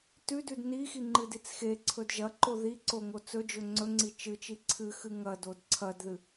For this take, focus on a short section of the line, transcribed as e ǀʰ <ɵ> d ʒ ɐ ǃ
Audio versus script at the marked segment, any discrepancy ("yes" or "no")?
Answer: no